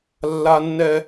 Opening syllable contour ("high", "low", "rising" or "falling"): high